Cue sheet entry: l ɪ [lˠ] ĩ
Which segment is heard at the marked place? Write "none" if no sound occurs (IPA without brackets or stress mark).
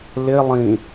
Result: lˠ